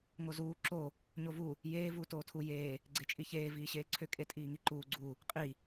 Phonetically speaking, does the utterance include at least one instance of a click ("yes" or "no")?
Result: yes